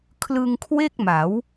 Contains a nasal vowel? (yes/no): no